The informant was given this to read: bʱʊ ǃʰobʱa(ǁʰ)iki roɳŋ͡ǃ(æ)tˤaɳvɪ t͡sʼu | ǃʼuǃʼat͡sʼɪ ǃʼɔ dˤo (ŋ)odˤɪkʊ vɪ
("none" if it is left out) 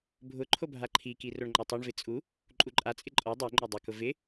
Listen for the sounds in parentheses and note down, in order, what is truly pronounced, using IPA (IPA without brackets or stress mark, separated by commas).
ǃʰ, a, ŋ͡ǃ